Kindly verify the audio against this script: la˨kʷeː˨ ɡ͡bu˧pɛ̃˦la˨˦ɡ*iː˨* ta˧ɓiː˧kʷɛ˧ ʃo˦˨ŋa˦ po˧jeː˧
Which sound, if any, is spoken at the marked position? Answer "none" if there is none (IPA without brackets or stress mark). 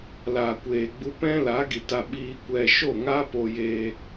i˨